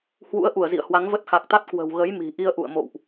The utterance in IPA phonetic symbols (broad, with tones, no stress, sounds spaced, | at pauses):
h w ṵ˧˥ ə̯ ʔ u˧˩ ə̯ z ḭ˧˨ ə̯ h w a˨˦ ŋ v ə˦˥ t̚ x a˨˩ k̚ t̪ a˦˥ t̚ k w ə̤˨˩ w ɣ ə˨˦ j m i̤˨˩ ʔ i˧ ə̯ ʔ ṵ˧˨ ə̯ m o̰˧˨ w ʔ